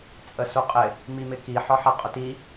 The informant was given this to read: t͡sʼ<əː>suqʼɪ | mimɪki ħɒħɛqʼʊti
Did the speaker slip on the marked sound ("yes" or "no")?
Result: yes